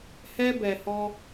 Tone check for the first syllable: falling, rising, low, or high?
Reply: high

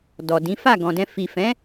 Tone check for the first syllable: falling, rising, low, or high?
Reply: low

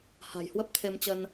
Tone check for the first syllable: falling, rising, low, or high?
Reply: low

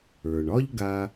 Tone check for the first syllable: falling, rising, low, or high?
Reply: low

